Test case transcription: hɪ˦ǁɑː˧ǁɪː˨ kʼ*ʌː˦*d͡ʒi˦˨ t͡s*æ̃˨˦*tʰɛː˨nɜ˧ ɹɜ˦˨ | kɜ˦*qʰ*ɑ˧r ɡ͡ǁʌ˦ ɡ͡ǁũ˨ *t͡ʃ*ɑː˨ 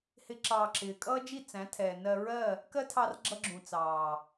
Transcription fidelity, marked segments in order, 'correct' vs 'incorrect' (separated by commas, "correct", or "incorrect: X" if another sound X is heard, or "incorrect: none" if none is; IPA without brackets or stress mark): correct, correct, incorrect: tʰ, incorrect: t͡s